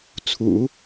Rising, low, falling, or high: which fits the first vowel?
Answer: low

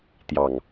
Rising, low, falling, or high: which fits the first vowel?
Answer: low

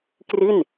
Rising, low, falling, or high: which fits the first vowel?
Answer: falling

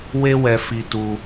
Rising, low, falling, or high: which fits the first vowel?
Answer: high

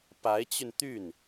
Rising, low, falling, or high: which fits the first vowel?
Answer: rising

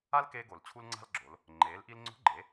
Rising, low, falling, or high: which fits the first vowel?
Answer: high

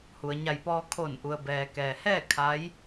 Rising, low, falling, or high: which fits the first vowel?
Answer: low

